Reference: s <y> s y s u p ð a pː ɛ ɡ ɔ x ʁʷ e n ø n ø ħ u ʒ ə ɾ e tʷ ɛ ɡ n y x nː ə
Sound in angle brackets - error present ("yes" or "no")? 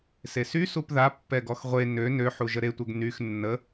yes